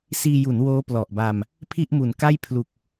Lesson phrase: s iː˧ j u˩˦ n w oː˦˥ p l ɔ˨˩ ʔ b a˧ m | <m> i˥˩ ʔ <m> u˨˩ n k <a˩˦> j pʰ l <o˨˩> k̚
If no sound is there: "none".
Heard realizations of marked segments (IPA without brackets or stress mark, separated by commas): pʰ, m, a˥˩, u˨˩